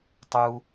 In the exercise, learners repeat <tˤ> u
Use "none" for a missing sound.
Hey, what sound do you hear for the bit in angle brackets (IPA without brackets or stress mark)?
tˤ